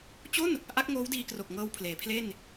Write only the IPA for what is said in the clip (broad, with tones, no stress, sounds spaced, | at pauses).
t͡ɕ o˥˩ n | ʔ a˦˥ k̚ ŋ oː˦˥ w d iː˧ k r o˨˩ k̚ ŋ ɤː˧ w pʰ l eː˩˦ pʰ l e˥˩ n